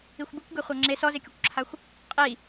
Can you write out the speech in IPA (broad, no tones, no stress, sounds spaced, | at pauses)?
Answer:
i xʷ b i kʷ ɡ e χʷ a ŋ͡ǁ e s ɔ z e kʲ o kʷ ǁʰ a xʷ | qʼ i